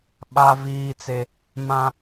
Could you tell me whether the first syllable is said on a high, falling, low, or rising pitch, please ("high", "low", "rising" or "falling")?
high